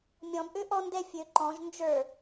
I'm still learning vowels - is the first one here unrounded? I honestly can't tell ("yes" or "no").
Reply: no